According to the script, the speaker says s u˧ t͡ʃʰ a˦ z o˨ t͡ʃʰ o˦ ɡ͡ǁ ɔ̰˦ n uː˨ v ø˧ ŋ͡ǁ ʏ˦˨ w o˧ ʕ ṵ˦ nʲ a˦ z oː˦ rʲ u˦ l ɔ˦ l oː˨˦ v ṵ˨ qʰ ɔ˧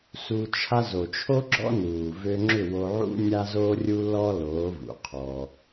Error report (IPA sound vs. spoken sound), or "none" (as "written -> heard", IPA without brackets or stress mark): none